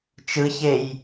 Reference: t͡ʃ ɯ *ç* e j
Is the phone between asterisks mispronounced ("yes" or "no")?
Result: no